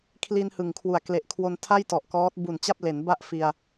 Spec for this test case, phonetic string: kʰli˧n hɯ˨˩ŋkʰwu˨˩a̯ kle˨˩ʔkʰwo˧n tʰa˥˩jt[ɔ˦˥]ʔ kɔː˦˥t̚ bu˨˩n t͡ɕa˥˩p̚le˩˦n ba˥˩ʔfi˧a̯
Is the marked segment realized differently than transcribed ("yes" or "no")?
yes